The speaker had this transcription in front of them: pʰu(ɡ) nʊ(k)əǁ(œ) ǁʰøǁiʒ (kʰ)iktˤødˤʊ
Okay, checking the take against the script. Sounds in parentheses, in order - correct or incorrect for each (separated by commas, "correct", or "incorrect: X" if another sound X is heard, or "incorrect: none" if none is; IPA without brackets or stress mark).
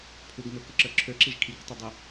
correct, correct, correct, correct